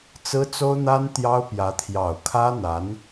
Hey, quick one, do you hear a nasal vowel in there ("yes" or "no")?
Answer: no